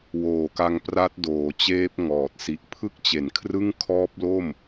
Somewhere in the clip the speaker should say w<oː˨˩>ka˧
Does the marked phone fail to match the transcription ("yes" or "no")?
no